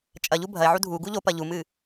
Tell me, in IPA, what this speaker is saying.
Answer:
t͡ʃʼɐʎu bʱɐe̯ʕu dʱuɡu ʎo pɐʎumɨ

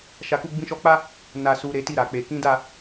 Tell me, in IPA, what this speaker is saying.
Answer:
ʃa˧ku˦ ɡ͡bĩ˧ʃɔ˧k͡pa˦ | na˨ su˨ ɾe˨˦ti˦˨ɾa˨k͡pe˨ kĩ˨˦da˦˨

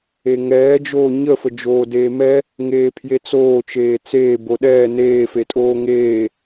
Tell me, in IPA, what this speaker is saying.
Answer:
eŋɛːd͡ʒoː ɲəfəd͡ʒoː deːmɛ | ŋeːpʰjet͡soː t͡ʃeːt͡seː boɗɛː neːfetʼoː ŋeː

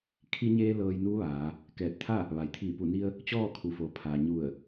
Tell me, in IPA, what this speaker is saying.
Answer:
kʰi˧ɲeː˧ lɤː˧jnuː˧˥ʋaː˩˧ | kɛː˧˩t̚t̪ʰa˥˨ | ʋa˩jt̪ʰiː˧˩ pu˧˩ni˧ə̯ | t͡ɕɔː˥˨kʰu˩fo˩ pʰa˩ɲu˧˩ə̯

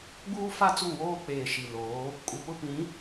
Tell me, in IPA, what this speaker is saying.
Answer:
ɡ͡buː˦fa˦ t͡su˦˨woː˦k͡peː˨ ʃi˨loː˨˦ | kʼu˨pʊ˦pĩ˨˦

